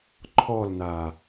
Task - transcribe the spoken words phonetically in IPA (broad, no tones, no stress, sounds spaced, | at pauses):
ǃʰ ɔ l n a